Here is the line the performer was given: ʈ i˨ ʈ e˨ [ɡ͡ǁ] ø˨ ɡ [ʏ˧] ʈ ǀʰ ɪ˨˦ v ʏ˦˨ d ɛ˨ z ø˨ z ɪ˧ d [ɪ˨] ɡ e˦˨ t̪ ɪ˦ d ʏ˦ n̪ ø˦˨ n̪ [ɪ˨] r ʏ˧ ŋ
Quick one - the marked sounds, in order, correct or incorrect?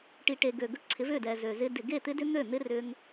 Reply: incorrect, correct, correct, incorrect

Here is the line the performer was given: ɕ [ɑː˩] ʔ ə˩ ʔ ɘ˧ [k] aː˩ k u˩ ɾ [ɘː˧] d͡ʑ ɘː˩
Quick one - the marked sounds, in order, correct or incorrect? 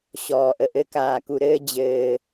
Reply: incorrect, correct, correct

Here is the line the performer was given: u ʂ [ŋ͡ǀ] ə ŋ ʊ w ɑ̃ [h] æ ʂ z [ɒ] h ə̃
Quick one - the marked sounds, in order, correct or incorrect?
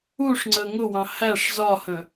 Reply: correct, correct, correct

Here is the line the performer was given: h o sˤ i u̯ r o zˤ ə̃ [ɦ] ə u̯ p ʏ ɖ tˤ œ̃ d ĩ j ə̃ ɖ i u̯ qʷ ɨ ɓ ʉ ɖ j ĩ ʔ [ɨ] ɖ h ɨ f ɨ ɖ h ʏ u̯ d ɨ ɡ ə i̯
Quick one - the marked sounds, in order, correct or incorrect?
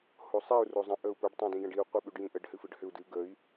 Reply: incorrect, incorrect

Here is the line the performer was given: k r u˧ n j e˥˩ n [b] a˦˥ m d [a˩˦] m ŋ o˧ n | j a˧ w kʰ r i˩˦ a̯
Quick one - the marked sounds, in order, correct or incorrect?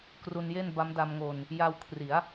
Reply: correct, incorrect

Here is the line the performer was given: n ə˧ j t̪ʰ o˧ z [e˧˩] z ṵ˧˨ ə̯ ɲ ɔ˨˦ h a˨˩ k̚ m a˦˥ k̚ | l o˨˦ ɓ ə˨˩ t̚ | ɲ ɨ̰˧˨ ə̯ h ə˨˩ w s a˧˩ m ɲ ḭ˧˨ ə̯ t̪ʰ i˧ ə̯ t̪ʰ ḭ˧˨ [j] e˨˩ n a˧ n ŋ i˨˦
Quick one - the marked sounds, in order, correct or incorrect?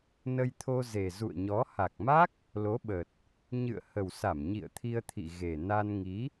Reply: incorrect, incorrect

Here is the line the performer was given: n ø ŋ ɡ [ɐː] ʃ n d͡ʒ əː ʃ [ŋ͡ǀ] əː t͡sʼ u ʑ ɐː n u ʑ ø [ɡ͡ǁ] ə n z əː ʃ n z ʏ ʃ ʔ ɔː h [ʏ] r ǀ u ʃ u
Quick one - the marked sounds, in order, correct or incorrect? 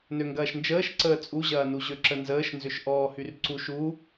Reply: correct, incorrect, incorrect, incorrect

